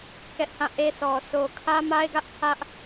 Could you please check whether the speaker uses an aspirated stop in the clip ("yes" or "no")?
yes